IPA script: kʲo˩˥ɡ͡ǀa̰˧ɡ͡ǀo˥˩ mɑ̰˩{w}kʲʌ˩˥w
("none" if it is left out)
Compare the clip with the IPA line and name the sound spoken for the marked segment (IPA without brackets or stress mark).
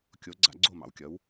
w